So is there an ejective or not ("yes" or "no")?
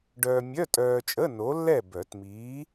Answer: yes